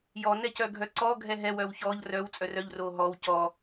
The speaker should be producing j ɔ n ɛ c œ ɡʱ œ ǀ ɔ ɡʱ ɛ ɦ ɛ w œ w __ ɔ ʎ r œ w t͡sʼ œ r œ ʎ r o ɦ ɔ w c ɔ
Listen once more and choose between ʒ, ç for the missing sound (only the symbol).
ç